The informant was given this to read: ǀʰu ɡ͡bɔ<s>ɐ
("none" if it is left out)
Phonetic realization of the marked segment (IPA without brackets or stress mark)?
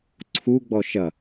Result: ʃ